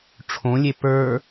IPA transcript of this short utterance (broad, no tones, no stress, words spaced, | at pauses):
ʈ͡ʂʰõlʲe pə˞